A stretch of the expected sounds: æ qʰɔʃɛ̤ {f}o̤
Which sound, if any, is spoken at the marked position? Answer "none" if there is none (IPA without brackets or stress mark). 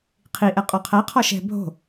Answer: bʱ